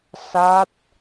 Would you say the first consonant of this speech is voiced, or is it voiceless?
voiceless